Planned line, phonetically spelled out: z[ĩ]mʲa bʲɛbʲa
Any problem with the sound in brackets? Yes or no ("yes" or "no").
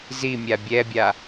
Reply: yes